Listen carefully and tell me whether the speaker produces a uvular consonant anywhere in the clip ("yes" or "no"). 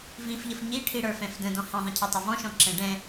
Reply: no